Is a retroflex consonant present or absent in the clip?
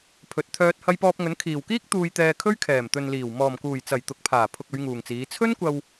absent